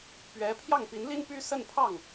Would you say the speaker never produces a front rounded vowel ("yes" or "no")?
no